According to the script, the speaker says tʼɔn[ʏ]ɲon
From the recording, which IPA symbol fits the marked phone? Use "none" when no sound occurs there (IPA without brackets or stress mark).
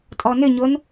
ʏ